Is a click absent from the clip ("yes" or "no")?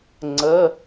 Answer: no